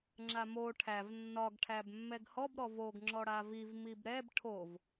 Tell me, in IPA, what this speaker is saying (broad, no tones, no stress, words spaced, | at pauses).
ŋ͡ǁamo ʈʰæv nːɒɡ ʈʰæbmːɛɡhɔb ɾɔvoɡ ŋ͡ǁɔɽaviv mibɾɛb ʈʰov